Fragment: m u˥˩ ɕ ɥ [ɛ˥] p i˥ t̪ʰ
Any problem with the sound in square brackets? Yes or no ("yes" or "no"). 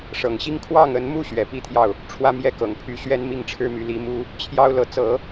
yes